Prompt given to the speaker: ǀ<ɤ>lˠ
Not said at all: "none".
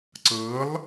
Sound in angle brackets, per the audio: ɤ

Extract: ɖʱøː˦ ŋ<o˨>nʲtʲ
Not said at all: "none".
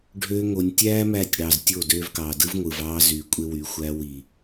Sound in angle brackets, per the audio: o˨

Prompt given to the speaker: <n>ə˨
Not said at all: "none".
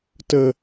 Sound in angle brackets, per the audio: t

